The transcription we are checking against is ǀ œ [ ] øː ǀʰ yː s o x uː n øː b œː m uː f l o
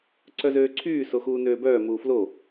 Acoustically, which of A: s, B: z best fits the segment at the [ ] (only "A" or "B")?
B